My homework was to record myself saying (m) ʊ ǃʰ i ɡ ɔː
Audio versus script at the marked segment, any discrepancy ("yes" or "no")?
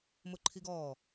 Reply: no